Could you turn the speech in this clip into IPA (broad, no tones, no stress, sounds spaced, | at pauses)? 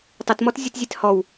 tˤ ɐ t m ɔ t zʲ ɨ t zʲ e t h ɔ w